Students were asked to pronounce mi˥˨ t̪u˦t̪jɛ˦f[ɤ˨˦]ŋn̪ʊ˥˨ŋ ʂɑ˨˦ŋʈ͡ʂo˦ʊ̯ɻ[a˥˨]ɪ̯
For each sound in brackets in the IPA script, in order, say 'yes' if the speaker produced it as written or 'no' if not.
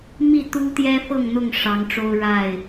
no, yes

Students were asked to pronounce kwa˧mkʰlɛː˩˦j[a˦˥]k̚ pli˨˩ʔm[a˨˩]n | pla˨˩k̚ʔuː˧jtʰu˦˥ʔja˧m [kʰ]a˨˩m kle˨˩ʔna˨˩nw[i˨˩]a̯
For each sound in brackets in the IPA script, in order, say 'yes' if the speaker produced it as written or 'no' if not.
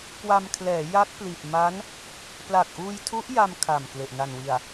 yes, no, yes, yes

